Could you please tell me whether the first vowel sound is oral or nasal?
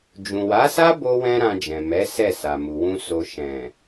nasal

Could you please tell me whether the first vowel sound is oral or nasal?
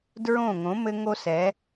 nasal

